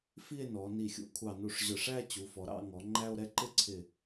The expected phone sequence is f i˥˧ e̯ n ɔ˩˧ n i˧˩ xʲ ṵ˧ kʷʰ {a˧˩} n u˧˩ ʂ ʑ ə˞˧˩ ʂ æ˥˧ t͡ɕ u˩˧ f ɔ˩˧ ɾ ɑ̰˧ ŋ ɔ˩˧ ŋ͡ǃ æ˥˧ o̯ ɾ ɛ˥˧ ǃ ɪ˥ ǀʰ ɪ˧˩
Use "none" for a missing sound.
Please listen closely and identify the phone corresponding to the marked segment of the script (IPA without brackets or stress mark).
ɑ˧˩